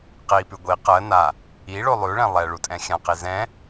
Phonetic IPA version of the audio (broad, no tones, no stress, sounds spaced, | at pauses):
q i p ʉ ɡʷ i q ɜ n a | i ɭ o lˠ ʉ ɭ ɛ̃ lˠ ɛ ɭ u tʼ ɛ̃ xʲ ã q i z ɛ̃